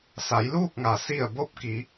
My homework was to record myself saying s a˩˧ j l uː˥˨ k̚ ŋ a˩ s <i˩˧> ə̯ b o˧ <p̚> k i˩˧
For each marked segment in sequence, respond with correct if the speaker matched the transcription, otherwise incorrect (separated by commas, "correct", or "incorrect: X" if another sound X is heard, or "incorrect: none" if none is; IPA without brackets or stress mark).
incorrect: i˧˩, correct